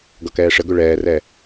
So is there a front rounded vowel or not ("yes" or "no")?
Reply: yes